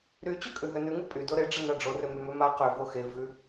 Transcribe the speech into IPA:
ɾ y t͡ɕ ø kʼ ʉ ɦ ø n ʉ ŋ ɨ pʼ y d o ɾ e ɖ͡ʐ ə n a ɖ͡ʐ o r ø m y m ø m a q ø v o x e v ʉ

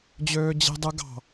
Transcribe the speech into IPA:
d͡ʑ øː d͡ʑ e̤ dˤ ɯ ɡ ɑ̤

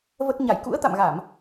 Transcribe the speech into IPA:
v ə˦˥ t̚ ɲ a˧˩ j k ṵ˧˥ ə̯ t̪ a̰˧˨ m ɣ a˧˩˨ m

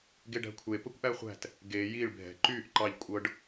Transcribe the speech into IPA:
ɡ e ɖ æ̤ kʷʰ e p ə kʷ ʔ æ χʷ æ̤ t | ɡ e j i ɭ bʱ ɛ̤ ǃ yː ʔ ǃ ɑ ʎ kʷʼ ɤ ɖ

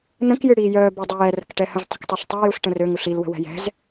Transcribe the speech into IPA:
n ə̃ k j ɨ ɽ iː j œː b ə dˤ œ j ɛ r ə̤ k ʈ ɛ h ə̃ z tˤ ə̤ k tˤ ø ɬ tˤ ø j u ɬ ʈ ə̃ r ø ŋ u ɬ i l w ə̤ w ɛ̤ j ɛ̤ z

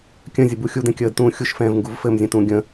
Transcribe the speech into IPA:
kʲ ə̃ zʲ ə b u xʲ u d ɛ̃ kʲ əː d t ũː xʲ u ʃ f ɛ̃ː v ŋ ɡ u v f ɘ m zʲ ə̃ t ũ ɡʲ ə̃

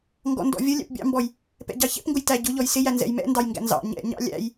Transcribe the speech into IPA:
ŋ ɡ ɔ̰ n d ɔ̰ vʲ ə lʲ æ̰ p bʲ ɑ̰ m b ɔ j | p ɛ̰ ɟ ɑ ç ɛ̰ p ŋ ɡ ʊ j t æ ɟ ʊ ʎ ɔ j s ɪ j æ n z ɛ̰ j m ɛ̰ n d ɑ j ŋ ɡ æ̰ n z ɑ̰ ɲ ɛ̰ ɲ ɑ̰ lʲ æ̰ j

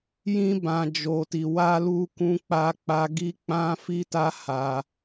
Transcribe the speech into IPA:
j ĩ˧ b ã˨ d͡ʒ o˨ t i˨ w a˧ l u˧ k ũ˧ k͡p a˧ k͡p a˧ ɡ i˦ k͡p ã˦ f i˦ t a˦ h a˧

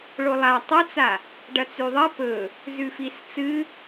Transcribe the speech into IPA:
ɭ o lˠ a tˤ ɐ t͡s a | ɖ ɐ t͡s ʉ ðˤ ɐ p ɵ | z ʉ f i s t͡s ɨ

